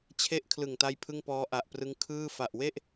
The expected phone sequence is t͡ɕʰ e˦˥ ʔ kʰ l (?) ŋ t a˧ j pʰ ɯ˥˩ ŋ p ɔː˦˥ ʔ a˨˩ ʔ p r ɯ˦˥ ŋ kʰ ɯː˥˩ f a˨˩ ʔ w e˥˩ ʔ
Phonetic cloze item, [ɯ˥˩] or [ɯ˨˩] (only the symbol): ɯ˨˩